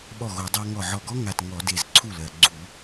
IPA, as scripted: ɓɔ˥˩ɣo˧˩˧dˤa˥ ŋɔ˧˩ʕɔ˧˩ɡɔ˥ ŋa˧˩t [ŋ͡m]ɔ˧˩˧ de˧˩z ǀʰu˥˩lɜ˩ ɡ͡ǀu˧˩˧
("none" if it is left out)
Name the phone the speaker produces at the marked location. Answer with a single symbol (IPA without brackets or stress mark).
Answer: ŋ